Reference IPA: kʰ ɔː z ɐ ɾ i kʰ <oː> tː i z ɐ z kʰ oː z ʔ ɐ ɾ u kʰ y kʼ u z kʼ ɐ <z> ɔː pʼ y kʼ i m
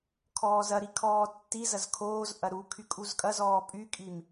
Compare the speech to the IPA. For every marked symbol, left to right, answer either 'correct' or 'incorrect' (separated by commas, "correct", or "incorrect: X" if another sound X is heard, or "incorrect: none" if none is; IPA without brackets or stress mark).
incorrect: ɔː, correct